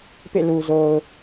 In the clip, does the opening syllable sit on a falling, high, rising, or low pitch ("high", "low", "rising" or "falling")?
falling